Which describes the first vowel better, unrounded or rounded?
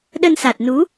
unrounded